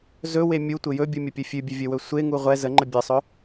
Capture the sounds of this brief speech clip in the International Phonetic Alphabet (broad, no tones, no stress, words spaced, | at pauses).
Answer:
zɵwe mʲutʷɘ jɵbʲumʲəpʲɵ fʲʉbʲɵvʲɵwɵ sʷeŋu ʁʷɛ zəŋ͡ǃə bʲɘsˤɵ